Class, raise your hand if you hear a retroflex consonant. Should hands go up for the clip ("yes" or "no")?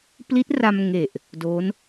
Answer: no